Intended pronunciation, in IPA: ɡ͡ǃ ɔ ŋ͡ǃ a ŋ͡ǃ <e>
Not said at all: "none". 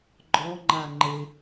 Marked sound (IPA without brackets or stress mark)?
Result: e